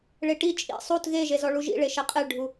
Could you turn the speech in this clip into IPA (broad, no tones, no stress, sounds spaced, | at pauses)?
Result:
ɭ e ʈ i t͡ʃʼ ḭ sˤ u t ɣ e ʒ e z ɔ ɭ u ʒ ḭ ɭ e ʃ ɛ qʼ e ɭ ɖʱ u